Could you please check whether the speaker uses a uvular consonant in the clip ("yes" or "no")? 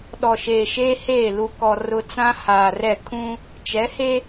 no